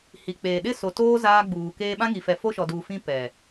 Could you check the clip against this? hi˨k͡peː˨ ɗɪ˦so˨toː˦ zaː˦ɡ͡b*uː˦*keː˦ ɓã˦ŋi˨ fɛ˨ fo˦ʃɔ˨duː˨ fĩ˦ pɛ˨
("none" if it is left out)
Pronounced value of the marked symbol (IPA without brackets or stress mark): uː˨